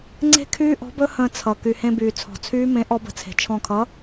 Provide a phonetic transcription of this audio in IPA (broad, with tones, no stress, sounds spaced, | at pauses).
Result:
ŋ͡ǀ e̤˦˥ kʰ yː˦˥ ʔ ɔ̤˨˥ b ɵ˦˥ h ə̃ː˧ t͡sʰ ʌ˩ k y˩ h ẽ˧ b yː˩ t͡sʰ ɔ̤˩ t͡sʰ yː˦˥ m ẽ˨˥ ʔ ɔ˧ b ə̤˨˥ t͡sʰ e̤˩ t͡ʃʰ ɔ̃˧˩ kʰ ʌ˨˥